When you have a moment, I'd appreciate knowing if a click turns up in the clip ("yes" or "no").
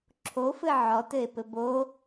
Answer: yes